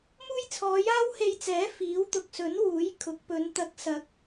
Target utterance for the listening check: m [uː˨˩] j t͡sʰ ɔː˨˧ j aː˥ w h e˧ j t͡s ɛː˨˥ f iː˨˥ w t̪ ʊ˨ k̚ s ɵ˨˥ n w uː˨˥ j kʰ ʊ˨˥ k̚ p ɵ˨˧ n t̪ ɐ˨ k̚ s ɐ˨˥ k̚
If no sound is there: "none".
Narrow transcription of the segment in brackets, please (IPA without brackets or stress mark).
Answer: uː˥